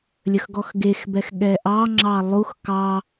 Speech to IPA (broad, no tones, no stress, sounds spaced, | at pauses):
lʲ ə x ɡ ɔ x ɡ e x b ɛ x ɠ ɛ ʔ ɑ ŋ͡ǁ ɑ lˠ u x k ɑ